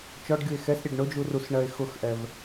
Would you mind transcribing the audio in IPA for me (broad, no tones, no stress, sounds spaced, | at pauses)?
t͡ʃ ɔ ɖ ɡʲ u e̯ x ɛ s ɾʲ ɛ ɖ ɳ ʊ d͡ʒ u r u s ɳ ɜ e̯ x ʊ x ʔ ɛ v